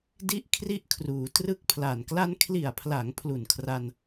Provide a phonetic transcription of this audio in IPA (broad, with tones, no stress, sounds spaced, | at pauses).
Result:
d i˥˩ ʔ kʰ r i˥˩ ʔ kʰ r uː˩˦ t r ɯ˥˩ k̚ pʰ l a˨˩ n k l a˧ n kʰ l i˨˩ a̯ pʰ l a˩˦ ŋ pʰ l u˨˩ n kʰ r a˧ n